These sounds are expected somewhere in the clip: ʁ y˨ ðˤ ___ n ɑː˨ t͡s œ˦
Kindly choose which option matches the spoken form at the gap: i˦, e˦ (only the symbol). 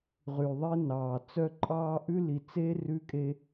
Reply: e˦